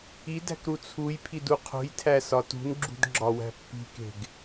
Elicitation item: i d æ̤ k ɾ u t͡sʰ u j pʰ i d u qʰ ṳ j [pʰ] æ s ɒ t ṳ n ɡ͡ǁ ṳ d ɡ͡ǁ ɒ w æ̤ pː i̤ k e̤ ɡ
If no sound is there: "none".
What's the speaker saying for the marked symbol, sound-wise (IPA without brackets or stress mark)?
tʰ